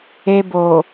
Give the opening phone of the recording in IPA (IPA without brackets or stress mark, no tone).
e